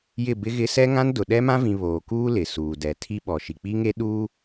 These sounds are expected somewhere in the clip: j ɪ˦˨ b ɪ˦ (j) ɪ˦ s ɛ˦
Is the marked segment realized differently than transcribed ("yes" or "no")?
yes